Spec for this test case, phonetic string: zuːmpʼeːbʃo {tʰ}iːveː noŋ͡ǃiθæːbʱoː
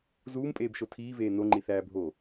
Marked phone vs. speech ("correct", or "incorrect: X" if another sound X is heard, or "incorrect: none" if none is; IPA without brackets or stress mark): correct